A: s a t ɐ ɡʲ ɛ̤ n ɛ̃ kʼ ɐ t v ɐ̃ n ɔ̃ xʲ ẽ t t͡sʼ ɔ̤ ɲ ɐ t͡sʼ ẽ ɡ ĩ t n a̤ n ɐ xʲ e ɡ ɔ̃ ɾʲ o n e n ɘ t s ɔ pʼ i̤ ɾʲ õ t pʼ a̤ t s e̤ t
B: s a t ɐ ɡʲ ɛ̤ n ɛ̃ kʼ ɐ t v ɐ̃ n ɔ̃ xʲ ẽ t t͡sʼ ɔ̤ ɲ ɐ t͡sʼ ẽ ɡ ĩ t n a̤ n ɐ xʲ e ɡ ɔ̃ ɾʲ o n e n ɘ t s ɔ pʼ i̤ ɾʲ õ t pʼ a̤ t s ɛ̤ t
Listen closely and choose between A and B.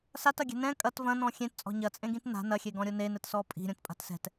B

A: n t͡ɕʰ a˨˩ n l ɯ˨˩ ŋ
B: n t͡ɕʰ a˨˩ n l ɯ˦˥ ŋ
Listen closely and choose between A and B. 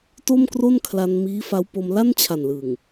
A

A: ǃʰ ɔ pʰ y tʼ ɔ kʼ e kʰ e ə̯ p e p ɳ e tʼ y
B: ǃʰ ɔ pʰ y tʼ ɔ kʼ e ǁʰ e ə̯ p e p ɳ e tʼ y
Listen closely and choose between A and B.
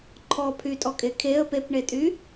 A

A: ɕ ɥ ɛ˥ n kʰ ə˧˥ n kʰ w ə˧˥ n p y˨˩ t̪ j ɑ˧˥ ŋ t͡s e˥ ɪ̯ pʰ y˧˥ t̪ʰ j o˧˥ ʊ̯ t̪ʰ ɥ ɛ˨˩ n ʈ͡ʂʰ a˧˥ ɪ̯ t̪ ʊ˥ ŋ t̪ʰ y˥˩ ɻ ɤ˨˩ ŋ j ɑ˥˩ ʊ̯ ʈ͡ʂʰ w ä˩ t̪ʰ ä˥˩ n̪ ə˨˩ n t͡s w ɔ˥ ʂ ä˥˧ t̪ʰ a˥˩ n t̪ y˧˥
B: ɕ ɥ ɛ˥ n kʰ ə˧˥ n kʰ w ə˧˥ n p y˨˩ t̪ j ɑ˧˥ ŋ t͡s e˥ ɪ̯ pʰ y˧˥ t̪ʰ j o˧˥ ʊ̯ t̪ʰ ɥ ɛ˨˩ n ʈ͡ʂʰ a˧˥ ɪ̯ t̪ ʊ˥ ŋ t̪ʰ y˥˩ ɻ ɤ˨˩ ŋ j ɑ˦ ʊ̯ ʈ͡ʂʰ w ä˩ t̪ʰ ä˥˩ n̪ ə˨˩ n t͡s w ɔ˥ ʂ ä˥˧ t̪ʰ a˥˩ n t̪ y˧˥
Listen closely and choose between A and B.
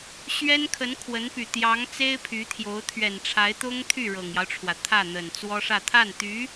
B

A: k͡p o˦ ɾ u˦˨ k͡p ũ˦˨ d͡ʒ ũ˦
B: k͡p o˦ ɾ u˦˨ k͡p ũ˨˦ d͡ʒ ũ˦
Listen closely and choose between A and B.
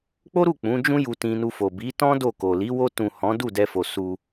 B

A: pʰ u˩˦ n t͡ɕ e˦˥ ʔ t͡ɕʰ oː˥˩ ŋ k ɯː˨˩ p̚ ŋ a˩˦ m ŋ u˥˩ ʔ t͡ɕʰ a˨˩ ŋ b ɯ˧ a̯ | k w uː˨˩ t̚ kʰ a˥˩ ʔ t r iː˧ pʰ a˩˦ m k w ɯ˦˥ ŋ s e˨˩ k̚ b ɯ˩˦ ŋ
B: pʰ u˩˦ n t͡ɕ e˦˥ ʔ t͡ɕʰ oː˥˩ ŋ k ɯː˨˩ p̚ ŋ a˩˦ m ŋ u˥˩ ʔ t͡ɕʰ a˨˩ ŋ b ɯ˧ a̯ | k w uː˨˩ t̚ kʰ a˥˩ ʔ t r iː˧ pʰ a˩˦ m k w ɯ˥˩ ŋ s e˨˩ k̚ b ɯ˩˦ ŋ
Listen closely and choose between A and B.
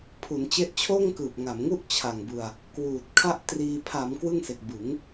B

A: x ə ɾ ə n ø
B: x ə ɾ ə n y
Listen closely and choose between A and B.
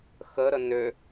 A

